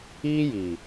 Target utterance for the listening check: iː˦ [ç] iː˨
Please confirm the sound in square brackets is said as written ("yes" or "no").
no